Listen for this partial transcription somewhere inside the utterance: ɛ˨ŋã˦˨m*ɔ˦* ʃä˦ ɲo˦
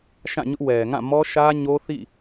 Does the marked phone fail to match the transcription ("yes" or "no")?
no